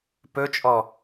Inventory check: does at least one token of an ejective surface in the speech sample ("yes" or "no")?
yes